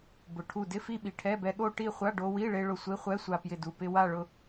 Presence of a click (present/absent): absent